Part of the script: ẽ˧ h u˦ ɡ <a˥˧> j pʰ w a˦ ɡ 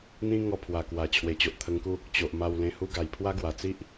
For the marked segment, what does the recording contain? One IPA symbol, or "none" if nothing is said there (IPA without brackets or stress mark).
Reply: a˨˩